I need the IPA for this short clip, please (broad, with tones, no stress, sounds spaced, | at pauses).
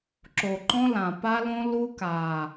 ǁ o˨ ǃ ɔ̃˦ l ã˨ p a˦ l õ˦ l u˦ k a˨